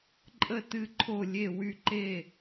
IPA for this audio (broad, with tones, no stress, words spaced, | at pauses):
ǃʼə˥˨ tɨ˥˨ǃʰo˥˨lʲe˥˨ wy˥˨ǃe˥˨